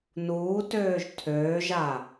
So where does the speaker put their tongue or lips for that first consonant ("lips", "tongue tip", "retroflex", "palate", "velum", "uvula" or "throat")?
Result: tongue tip